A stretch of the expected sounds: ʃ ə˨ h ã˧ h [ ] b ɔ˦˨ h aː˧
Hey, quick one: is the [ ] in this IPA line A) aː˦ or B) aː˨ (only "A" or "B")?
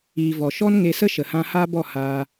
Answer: A